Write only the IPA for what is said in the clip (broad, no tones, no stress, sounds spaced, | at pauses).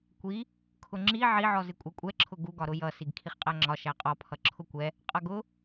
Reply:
kʷ i | kʰ ʊ ŋ͡ǁ i ʕ i ʕ ɔ z ɪ kʷʼ ɛ kʷʼ ɛ ǁʰ ʊ ɡ u ɡ ɒ ɾ ʊ j ʌ s i ɡ kʰ i χ qʼ æ ŋ͡ǁ ɒ ʃ æ qʼ ɒ pʰ ʌ ǁʰ ʊ kʷ ɛ | qʼ ʌ ɡ ʊ